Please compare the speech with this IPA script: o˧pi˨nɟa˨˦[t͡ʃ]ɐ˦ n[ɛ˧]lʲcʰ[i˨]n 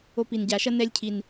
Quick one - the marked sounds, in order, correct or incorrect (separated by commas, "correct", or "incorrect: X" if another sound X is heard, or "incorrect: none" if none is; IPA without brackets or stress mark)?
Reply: incorrect: ʃ, correct, correct